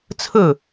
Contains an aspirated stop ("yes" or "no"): yes